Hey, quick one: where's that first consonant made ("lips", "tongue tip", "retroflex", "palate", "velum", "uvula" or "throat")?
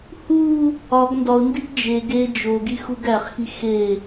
throat